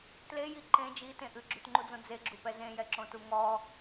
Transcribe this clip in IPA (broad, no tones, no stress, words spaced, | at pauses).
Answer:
tleji ǃẽ d͡ʒitẽ ʔʉɡ͡ǁʉtŋ͡ǃud͡zõ d͡zeɡ͡ǁupɛ zẽjɛǁõtu ŋɔ